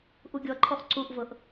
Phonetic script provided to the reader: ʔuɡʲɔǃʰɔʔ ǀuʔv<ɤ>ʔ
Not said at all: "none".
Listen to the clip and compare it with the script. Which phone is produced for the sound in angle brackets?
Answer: ɤ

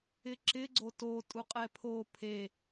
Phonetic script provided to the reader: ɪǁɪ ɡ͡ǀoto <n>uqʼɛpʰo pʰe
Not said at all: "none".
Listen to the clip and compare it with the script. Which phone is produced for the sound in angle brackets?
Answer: tʼ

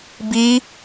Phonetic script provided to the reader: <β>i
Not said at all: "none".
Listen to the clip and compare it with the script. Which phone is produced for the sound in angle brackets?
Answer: b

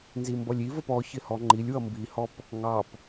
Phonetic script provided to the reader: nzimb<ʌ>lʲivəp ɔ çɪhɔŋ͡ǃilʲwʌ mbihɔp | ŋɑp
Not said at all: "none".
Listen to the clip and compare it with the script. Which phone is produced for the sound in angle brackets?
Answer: ʌ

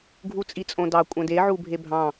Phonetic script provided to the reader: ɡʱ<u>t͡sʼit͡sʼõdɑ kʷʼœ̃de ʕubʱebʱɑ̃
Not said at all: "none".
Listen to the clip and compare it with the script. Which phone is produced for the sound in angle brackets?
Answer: u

